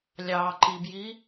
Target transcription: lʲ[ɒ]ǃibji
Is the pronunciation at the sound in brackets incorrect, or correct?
incorrect